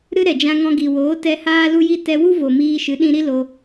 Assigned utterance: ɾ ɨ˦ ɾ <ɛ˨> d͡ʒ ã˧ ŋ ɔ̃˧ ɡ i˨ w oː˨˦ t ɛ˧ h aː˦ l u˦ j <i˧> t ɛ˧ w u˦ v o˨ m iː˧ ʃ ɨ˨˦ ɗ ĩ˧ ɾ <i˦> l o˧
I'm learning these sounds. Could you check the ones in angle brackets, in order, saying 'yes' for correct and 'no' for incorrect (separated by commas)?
yes, no, yes